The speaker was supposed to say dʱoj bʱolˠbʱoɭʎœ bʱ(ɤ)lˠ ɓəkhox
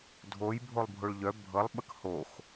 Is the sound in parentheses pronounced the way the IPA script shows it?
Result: yes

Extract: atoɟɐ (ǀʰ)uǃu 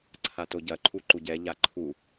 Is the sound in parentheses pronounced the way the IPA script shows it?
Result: no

